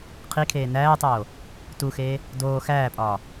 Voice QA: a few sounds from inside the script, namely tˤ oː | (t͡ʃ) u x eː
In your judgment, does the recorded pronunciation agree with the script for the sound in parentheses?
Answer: no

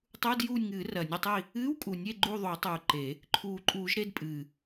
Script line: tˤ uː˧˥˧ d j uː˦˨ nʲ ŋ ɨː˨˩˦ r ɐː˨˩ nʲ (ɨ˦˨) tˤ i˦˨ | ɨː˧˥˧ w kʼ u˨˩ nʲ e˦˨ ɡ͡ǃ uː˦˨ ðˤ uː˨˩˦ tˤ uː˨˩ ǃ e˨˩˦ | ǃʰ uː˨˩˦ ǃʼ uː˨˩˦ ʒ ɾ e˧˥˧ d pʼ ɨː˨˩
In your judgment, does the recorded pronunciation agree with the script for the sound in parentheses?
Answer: yes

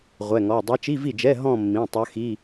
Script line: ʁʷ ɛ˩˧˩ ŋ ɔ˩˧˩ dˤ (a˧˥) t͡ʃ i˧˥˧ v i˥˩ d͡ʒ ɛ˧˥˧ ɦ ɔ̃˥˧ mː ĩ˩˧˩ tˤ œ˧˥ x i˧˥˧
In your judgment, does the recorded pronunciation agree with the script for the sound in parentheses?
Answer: yes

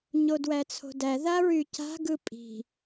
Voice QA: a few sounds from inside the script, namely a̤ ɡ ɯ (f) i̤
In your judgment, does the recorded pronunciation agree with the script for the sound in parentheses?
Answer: no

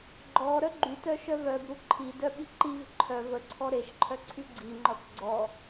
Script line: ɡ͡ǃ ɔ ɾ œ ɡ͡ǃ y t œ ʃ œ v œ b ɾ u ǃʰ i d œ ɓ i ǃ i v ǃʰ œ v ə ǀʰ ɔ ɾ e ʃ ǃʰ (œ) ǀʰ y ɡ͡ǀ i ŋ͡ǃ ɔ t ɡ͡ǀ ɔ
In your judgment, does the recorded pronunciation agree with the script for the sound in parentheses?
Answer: yes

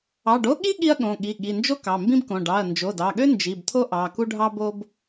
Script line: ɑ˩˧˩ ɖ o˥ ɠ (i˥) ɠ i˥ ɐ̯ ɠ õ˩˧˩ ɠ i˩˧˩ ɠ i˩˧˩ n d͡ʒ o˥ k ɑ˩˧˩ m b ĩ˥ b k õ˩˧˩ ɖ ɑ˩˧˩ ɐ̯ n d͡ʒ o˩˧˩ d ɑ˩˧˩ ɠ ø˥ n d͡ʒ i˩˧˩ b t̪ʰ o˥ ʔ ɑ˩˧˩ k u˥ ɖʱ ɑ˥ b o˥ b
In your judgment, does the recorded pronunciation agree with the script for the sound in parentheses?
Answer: yes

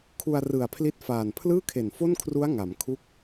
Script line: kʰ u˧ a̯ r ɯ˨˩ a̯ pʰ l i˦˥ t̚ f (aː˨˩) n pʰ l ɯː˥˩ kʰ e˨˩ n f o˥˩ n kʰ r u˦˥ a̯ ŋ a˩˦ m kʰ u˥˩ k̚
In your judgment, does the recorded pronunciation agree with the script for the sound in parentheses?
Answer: yes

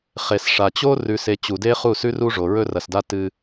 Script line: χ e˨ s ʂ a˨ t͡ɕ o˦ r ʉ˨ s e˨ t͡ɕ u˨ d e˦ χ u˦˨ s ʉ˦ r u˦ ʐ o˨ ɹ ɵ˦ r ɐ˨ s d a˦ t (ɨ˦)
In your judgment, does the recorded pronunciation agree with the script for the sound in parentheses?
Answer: yes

